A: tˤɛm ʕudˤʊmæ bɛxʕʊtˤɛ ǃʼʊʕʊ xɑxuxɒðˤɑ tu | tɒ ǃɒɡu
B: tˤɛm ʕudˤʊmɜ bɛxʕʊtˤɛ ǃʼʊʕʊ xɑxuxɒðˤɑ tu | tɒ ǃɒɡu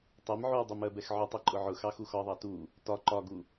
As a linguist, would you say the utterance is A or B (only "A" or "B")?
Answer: B